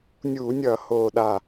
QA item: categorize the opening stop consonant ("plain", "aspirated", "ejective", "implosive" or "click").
implosive